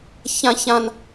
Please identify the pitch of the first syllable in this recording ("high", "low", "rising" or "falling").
high